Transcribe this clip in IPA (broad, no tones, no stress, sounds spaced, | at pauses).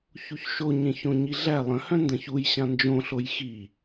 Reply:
ç u ç ʃ o ɲ ẽ ç õ ɲ i ɮ æ lˠ ə̃ h œ̃ n d ɐ̃ ç u j ɕ ã n d͡ʒ õ ɬ o j x i